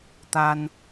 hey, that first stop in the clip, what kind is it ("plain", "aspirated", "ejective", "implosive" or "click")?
plain